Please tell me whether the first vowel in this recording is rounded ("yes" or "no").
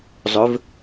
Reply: yes